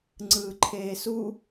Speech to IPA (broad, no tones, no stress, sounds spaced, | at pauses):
ŋ͡ǀ ɯː ǃʰ eː s u